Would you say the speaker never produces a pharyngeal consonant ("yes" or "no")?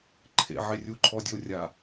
no